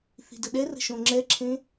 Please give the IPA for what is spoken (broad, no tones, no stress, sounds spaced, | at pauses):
θ i̤ d ə ɗ ɛ r ə̤ ʃ õ ŋ͡ǁ ɛ ǁʰ ẽ